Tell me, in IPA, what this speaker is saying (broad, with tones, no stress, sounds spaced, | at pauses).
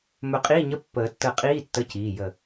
m ɵ˧˩ qʼ i˧˥˧ ɲ ə˧˥˧ pː əː˨˩˦ tː ə˧˩ qʼ iː˧˥˧ tː ə˧˥˧ c iː˩˧˩ j ə˧˩